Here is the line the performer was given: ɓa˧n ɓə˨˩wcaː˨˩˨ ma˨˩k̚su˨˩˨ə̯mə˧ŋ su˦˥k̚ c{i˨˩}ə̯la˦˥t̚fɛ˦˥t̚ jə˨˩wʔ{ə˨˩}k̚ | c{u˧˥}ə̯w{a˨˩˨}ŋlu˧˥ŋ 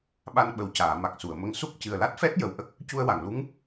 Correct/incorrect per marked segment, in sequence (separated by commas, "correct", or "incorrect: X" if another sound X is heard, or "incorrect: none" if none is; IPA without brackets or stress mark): incorrect: ɨ˨˩, incorrect: ə˦˥, incorrect: u˧, correct